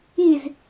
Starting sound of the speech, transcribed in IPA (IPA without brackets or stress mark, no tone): i